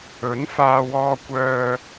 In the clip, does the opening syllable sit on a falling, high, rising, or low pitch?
rising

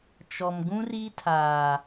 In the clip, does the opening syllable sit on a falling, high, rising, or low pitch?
low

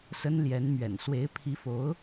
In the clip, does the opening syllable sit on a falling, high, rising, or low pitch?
high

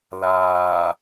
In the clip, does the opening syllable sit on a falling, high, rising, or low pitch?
low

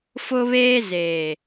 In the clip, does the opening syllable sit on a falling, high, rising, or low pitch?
high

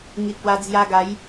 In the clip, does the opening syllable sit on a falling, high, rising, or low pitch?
low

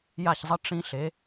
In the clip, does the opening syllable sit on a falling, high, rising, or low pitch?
falling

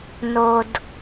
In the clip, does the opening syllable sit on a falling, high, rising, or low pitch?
low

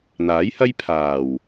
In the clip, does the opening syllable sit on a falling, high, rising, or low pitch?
rising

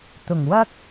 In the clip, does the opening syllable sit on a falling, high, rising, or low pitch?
low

